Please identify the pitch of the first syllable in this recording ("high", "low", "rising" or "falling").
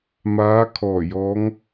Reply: rising